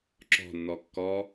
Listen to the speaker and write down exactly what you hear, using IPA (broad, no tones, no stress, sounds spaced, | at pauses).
ǁ ɔ̤ nː ɔ kː ɔ